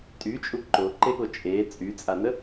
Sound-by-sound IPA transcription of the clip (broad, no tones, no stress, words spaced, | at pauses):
tʼyt͡ʃʼu ǃoǃeɠo t͡ʃʼe t͡sʼyt͡sʼanə